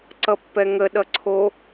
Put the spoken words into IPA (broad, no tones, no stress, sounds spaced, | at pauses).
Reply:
ǀ ʌ pː ɛ ŋ ə ɗ ʌ ǀʰ o